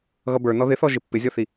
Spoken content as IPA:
ɣ ʌ b ə˞ n ɔ ð ɪ θ ɔ ʒ ɪ pː ɪ zʲ ɔ θ i

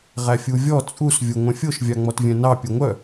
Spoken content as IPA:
ʁ æ fʲ u vʲ ɔ t͡sʼ u s vʲ o ŋʷ œ̃ fʲ o ʃ vʲ ɑ ŋ͡m ɔ t vʲ œ̃ n ɑ pʲ u ŋʷ œ

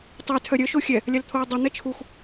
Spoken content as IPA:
tˤ e tʰ œ ɾʲ œ ʃ o xʲ ɛ | lʲ a l t̪ʰ o i̯ dˤ i n̪ ɛ t͡ʃʰ u x

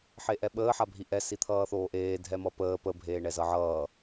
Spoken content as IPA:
ħ e ʔ ɛ ɓ əː ħ a bʱ i ʔ ɛ s i t̪ʰ ʌː θ oː ʔ eː dʱ ɛ m ʌ p əː p ə bʱ eː ɳ ɛ z ʌ ʕ ʌː

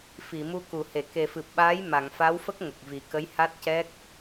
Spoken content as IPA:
f i˨˩˨ m u˧ k u˨˩˨ h e˨˩˨ k e˨˩ f ɨ˨˩ p̚ ɓ aː˧˥ j m a˨˩˨ ŋ f a˧˥ w f ə˦˥ k̚ ŋ ə˨˩ k̚ v i˨˩ k ə˧˥ j h a˦˥ t̚ c ɛ˦˥ k̚

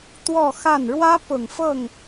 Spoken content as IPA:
t̪ w ɔ˥˧ x a˥˩ n ɻ w ä˥ p ʊ˨˩ ŋ f ɤ˥˩ ŋ

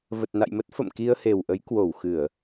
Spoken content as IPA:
v ə˨˩ t̚ n a̰˧˨ j m ə˦˥ t̚ f ə̰˧˨ m k i˧ ə̯ h e˨˩ w ʔ ə˨˦ j k w o˧˩ w x ɨ˧˩˨ ə̯

